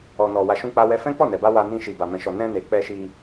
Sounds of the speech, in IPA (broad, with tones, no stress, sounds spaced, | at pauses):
ɔ˨ n ɔ˨ w a˨ ʃ ũ˧ k͡p a˧ w ɛ˧ f ɛ̃˦ k͡p ɔ˦˨ n ɛ˨ b a˧ w a˧ n ĩ˧ ʃ i˨ b a˨ m ɛ̃˨ ʃ ɔ˨ n ɛ̃˧ n e˨ k͡p ɛ˧ ʃ i˧